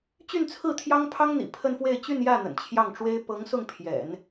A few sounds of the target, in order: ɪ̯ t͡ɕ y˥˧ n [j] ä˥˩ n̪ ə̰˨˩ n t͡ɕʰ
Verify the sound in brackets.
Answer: correct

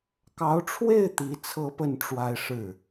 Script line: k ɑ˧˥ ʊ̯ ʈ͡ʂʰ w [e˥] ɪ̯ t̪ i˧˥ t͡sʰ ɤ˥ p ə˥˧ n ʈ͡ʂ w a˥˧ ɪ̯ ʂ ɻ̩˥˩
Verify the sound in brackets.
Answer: incorrect: e˥˩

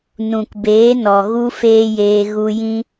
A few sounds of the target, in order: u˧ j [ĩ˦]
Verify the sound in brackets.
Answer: correct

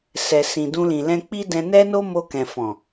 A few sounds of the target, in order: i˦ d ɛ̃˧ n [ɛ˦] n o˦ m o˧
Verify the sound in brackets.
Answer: correct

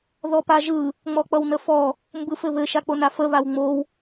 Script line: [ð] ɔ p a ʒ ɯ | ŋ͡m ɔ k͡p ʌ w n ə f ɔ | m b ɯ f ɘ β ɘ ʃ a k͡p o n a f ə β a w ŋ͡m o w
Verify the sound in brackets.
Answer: correct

